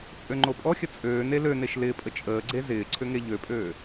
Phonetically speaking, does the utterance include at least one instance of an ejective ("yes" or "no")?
yes